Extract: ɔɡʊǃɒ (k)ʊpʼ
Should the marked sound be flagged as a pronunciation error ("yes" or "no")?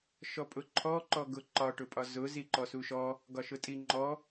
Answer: yes